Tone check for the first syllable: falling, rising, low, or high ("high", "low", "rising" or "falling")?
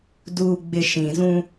low